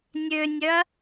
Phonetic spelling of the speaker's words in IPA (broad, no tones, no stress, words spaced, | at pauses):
nʲønʲœɐ̯